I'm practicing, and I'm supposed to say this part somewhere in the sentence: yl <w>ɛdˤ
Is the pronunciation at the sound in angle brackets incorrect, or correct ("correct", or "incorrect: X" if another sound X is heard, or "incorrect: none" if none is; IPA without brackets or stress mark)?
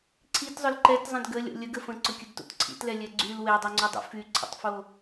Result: correct